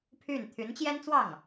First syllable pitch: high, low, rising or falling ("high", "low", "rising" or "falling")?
falling